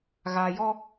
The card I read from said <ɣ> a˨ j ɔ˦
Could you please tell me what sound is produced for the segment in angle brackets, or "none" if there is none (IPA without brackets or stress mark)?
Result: ɣ